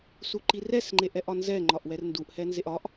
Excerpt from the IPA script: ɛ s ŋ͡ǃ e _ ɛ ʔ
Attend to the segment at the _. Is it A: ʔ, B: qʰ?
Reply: A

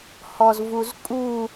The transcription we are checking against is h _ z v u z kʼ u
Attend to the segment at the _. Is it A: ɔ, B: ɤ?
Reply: A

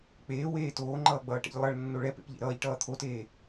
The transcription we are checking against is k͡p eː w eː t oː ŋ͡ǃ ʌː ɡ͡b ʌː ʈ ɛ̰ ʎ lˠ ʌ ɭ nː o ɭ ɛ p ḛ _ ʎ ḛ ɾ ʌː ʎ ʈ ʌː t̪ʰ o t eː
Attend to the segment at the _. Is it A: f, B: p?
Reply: B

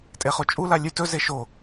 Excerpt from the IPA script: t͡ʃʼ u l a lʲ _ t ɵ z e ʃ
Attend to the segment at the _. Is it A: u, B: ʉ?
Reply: B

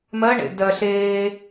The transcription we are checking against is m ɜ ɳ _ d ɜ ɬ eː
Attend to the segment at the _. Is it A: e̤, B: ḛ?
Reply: B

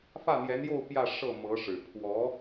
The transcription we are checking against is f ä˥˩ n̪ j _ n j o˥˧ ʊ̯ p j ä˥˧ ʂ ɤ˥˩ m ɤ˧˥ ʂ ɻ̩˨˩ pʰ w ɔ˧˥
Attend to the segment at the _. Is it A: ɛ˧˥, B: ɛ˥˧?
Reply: A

